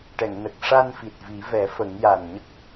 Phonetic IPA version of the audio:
ʈ ɛ˨˩˨ ŋ n ə˨˩ k̚ ʂ a˧ n f i˨˩ t̚ v i˨˩˦ v ɛ˨˩˦ f ə˨˩˦ ŋ j a˨˩ n ɲ ə˦˥ k̚

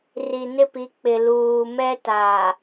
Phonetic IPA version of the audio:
r i˨ n ɪ˦˨ p i˨˦ k͡p ɪ˨ l uː˨ m ɛ˦ t aː˨

